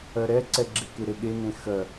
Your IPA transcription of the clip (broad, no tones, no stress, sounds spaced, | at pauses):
ɜ ɾ ɛ ǀ ɛ ɡ͡ǁ e k e ɾ e ɠ e n ẽ x ɜ